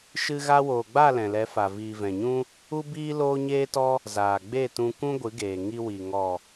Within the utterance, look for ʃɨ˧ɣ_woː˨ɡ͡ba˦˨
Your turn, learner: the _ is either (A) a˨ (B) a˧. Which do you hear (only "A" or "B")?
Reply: B